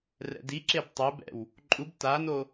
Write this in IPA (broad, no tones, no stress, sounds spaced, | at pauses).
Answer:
r ɛ̰ d i ǁ e b tˤ e b ɛ̰ w | ǃʼ u b t a n o